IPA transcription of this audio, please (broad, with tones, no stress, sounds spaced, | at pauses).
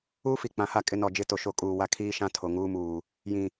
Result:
uː˦ f i˨ k͡p ã˨ h a˦˨ kʼ ɪ˦ n ɔ˦˨ d͡ʒ ɪ˦ t o˨ ʃ o˨ kʼ uː˨ w a˦ kʰ iː˦ ʃ ã˦ tʰ o˨ ŋ uː˦ m uː˨ | j ĩ˨